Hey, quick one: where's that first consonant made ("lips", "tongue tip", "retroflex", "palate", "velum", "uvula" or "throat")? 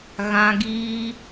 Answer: velum